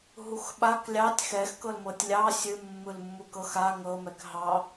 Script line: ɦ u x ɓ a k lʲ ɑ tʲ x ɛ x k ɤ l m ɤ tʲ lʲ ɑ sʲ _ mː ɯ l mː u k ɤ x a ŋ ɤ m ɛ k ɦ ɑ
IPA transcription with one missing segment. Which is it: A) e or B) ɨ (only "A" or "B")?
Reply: B